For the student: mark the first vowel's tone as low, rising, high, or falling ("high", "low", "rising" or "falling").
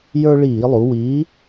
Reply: high